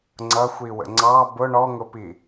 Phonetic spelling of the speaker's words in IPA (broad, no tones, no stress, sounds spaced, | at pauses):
ŋ͡ǀ ʌ xʷ iː w ə̰ ŋ͡ǀ ɑ b ʊ ɳ ɔ ŋ ʊ p i